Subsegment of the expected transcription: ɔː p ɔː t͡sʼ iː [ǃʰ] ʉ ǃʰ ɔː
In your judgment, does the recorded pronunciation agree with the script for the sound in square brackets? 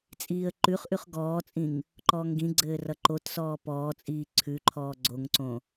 no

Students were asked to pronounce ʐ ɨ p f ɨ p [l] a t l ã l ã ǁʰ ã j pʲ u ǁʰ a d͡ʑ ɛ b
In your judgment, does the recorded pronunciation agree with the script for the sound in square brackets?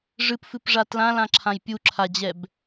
no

